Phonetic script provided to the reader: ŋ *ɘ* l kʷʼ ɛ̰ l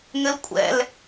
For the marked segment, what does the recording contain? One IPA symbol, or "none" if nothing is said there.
ɘ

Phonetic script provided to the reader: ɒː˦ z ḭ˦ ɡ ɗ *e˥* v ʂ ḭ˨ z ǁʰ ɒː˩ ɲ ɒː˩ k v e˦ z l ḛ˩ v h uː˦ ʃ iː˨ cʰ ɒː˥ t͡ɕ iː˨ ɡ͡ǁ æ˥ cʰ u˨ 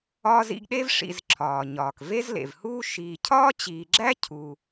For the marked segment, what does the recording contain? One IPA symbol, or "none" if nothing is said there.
e˥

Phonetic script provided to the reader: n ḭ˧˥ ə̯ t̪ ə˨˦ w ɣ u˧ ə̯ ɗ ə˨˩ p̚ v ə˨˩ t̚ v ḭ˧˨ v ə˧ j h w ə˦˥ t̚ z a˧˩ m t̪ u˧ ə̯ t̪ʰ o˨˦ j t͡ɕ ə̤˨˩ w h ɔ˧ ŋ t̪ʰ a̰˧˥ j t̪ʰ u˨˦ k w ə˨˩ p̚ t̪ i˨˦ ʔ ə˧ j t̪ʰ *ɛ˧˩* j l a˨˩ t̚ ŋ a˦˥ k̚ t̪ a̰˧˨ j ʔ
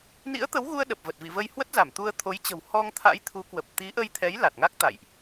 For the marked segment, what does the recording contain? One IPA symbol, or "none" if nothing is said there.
ɛ˨˦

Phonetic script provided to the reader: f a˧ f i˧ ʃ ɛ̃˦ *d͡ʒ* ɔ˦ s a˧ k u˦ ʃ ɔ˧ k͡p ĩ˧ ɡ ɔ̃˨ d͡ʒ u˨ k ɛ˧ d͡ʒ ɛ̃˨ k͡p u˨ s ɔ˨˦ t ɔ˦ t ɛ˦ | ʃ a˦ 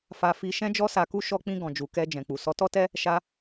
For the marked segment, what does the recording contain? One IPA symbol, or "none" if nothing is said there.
d͡ʒ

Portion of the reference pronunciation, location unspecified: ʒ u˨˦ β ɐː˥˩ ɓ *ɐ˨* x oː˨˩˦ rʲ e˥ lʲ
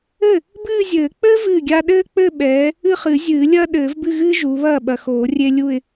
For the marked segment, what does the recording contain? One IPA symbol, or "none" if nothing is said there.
ɐ˨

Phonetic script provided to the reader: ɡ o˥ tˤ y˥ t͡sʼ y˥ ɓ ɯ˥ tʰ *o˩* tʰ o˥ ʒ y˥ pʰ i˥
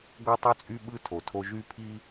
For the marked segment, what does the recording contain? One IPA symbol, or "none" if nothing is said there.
o˩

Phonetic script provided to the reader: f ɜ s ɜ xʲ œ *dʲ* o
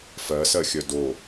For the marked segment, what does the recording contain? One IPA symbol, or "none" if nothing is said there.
d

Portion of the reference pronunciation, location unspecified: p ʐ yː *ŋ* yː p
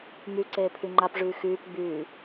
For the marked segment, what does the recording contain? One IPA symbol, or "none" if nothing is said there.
x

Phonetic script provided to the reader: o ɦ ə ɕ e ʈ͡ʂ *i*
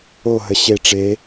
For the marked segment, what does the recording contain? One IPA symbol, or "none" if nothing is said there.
e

